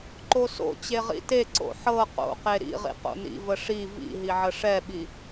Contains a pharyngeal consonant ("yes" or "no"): yes